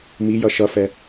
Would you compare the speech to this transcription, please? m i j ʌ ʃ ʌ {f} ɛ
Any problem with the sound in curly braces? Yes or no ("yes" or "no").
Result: no